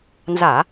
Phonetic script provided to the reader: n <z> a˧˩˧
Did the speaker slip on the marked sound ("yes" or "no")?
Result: no